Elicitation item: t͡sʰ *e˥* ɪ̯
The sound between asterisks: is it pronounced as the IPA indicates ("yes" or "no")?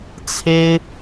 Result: yes